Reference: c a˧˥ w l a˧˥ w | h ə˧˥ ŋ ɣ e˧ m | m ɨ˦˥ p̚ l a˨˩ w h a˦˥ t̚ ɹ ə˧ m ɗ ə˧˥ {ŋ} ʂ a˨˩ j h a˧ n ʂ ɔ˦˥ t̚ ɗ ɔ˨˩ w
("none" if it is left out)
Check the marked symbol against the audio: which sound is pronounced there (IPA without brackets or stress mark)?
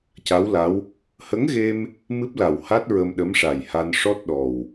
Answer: m